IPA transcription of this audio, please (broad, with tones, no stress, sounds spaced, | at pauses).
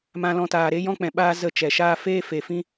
m ã˧ l ɔ̃˧ t aː˨ ɾ e˦ j ɔ̃˦ k͡p ɛ̃˨ ɓ aː˦ z ə˧ t͡ʃ ɛ˨ ʃ aː˦ f eː˦ f e˨ f ĩ˦